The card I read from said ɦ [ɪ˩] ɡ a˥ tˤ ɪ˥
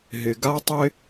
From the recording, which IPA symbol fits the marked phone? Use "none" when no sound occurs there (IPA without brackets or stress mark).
ɪ˩